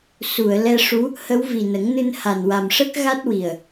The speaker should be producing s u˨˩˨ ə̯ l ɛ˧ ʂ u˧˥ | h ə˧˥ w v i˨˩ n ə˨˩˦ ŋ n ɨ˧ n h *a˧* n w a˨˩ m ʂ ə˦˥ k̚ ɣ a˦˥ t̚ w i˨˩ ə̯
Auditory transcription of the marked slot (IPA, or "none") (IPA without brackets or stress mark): a˨˩